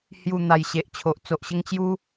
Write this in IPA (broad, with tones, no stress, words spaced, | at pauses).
hju˨˩ n̪a˨˩jɕe˨ʔt͡ɕʰo˨ʔ t͡so˨ʔɕə˦ŋ t͡ɕju˦